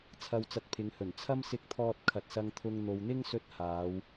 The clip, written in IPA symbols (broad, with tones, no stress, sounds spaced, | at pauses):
t͡sʰ ɐ˧ w t͡s ɐ˧ t̚ pʰ ɪ˨˧ ŋ h ɵ˨˩ n t͡sʰ ɐ˥ m s ɪ˧ k̚ t̪ʰ ɔː˧ t̚ kʰ ɐ˨ t̚ s ɐ˧ ŋ t̪ʰ ʊ˧ ŋ n̪ o˨ w n̪ ɪ˥ ŋ s ɵ˧ t̚ h aː˨˧ w